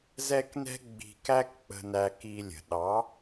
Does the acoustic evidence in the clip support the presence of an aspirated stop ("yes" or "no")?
no